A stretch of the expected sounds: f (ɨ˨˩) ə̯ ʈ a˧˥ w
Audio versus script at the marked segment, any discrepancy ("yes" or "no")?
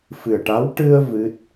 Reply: no